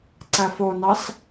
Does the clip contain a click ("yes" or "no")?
yes